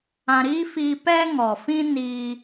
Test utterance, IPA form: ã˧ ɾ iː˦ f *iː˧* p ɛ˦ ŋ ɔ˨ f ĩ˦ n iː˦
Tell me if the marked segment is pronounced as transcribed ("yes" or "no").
yes